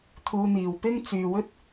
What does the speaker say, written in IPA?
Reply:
t̪ʰ uː˧ n̪ iː˨ w p ɪ˥ ŋ t͡s yː˨ w ɵ˥ t̚

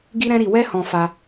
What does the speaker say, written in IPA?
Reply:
ɡ i˦ ɾ ɛ̃˦ ɾ i˧ w ɛ˦ h ɔ̃˧ f a˧

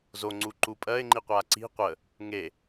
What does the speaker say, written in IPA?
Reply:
z o ŋ͡ǀ u ǃ u pʼ ɜ ɪ̯ ŋ͡ǃ i qʷ a ǀ i̤ qʷ ə | ŋ e

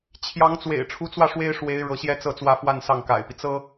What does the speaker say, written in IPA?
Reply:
t͡ɕʰ j ɑ˧˥ ŋ t͡s w ḛ˨˩ ɪ̯ ʈ͡ʂʰ u˧˥ t͡s w ä˧ ʂ w e˥ ɪ̯ ʂ w e˧˥ ɪ̯ ɻ ɤ˧˥ ɕ j ɛ˥ t͡s ɤ˥˩ t͡s w ä˥ f w a˥˧ n s ɑ˥˩ ŋ k a̰˨˩ ɪ̯ p i˦ t͡s ɤ˥

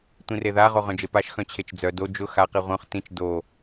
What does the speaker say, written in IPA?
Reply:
tʷ ĩ r e ð a ʁ o ʁ œ̃ d͡ʒ e p a ʃ x œ̃ t͡ɕʰ e t͡ʃ d͡z œ d o d͡ʒ ʊ x a q i ʁʷ œ̃ χ t ĩ t͡ʃ d o

